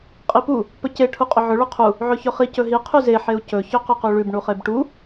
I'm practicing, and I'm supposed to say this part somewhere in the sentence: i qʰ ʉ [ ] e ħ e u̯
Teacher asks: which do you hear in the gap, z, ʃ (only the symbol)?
z